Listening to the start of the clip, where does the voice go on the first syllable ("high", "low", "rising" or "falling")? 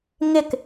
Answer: falling